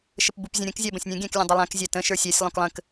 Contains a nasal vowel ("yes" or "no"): yes